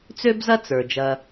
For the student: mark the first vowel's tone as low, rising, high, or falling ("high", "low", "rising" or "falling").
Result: high